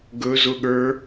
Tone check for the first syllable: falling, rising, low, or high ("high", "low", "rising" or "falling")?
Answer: rising